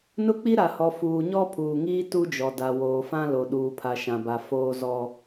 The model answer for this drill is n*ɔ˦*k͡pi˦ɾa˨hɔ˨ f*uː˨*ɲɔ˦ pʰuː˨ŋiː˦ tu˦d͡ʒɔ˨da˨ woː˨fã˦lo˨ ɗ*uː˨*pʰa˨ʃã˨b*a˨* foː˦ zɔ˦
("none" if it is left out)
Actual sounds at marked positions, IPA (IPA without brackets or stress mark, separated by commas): ʊ˦, uː˨, uː˨, a˨